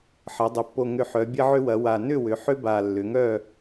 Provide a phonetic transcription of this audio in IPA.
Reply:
ħɐ˩˧ dˤʏ˩˧pːo˨˩ŋʏ˨˩ ħœ˩˧bʲɐ˦ʕʏ˦wɐ˩˧ wa˨˩nʏ˥˨ wʏ˩˧ħʏ˦ ba˨˩lːʏ˩˧ŋœ˥˨

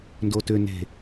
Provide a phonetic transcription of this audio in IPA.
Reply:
ndotʏ ne̤

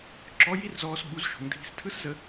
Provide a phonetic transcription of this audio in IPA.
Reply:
ǁɔ˧˥ji˥rzɔː˧s ɓu˧˥zʃo̤˩˧ŋ dʱi̤˧stʰɯ˥s zə˧

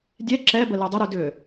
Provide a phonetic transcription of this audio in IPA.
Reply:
dʲɛ ǁɛbə ludˤəɾu dʏ

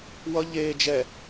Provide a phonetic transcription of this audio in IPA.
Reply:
wʌ ʎeː d͡ʒɛ

